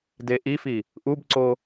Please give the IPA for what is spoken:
deʔifi | ʔubǀo

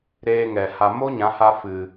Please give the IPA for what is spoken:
ɾeː˧ŋɛ˨ha˧ mo˦ɲã˨˦ha˧ fɨ˨

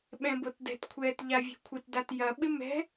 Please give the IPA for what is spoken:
ɓɛ̃botdɛ̤tkʷʰɛːt ʎavʲɛ̤kʷʰɪtdat jɐɓɪ mɛ̤

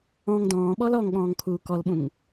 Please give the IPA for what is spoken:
ɔ̃ŋ dɔ̃ːɓɔl ɔŋɠɔ̃ːŋkʰuː kɔlɓũŋ

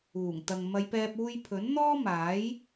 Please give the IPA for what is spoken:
uː˨˩ŋ t̪ɐ˨ŋ mɐ˨˧jpɛː˧p̚ uː˧jpʰɵ˨˥n n̪ɔː˥maː˨˥j

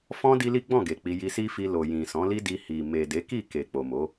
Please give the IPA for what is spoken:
fɔ̃˦ di˦li˦ɡ͡bɔ̃˦˨ɡe˨ k͡pi˧ ji˧si˦fi˧ lo˨jĩ˨ sɔ̃˨˦li˦di˧ hi˨ me˨de˨˦ki˦˨ ke˨k͡po˨ mo˨˦

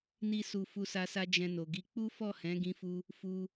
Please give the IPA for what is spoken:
ni˦su˧ fu˧sa˧sa˧ d͡ʒɛ̃˧no˨ɡi˧ k͡pu˦fɔ˦˨ hɛ̃˨˦ɡĩ˧fu˧ | fu˧

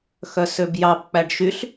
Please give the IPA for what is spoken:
xœsøbjɑb k͡pæɖʃyɬ

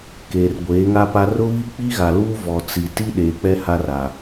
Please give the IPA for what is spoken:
keː˨rɡʷeː˨˦ŋa˦pa˦ rʊ˦βi˦ k͡pi˦ɣa˨luː˦ vɔ˨t͡si˨ ti˦ ɗeː˨k͡pɛ˦ ha˦ra˨

